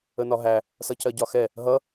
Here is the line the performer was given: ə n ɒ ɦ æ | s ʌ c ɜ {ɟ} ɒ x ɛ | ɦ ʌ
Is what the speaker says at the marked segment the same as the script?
yes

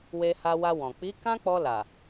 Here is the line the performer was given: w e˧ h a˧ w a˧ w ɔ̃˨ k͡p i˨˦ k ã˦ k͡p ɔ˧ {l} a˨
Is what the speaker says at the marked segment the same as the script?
yes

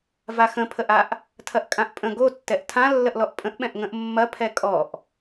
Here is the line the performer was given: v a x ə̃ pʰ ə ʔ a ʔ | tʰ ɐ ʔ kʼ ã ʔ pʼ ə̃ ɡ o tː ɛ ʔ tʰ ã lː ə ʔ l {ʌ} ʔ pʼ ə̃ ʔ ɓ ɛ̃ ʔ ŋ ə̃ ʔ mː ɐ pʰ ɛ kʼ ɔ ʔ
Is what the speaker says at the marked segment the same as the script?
no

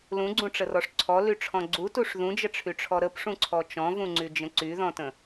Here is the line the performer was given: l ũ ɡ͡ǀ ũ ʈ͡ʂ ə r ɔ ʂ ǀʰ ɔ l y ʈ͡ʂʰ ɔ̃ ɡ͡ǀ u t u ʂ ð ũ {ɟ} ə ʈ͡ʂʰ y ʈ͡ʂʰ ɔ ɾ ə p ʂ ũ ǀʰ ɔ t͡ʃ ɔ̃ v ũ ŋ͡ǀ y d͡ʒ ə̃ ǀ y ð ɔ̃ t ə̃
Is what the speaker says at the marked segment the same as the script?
no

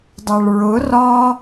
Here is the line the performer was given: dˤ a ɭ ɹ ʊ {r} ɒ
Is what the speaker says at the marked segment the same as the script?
yes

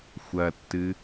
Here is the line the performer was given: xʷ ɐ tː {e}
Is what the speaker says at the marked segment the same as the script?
no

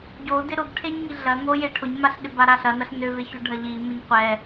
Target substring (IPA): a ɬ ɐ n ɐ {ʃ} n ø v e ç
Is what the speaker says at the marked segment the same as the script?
no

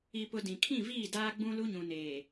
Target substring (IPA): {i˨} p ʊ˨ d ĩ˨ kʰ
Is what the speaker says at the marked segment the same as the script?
yes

